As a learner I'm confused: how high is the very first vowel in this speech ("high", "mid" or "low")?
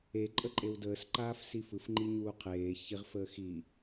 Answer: mid